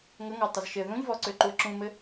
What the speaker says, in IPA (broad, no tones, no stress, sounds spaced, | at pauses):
ŋ ə ŋ ɔ tˤ ə z ʃ ɘ ð ũ ʎ v ɔ ǀ ø ǃ u ə̯ ǁ ũ m ɘ